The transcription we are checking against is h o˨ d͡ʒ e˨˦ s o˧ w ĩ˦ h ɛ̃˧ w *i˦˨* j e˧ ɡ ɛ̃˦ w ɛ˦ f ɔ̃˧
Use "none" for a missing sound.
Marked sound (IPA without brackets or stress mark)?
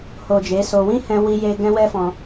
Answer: i˧